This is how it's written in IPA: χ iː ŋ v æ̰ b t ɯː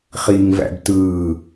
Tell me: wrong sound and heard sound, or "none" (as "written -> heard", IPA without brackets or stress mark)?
none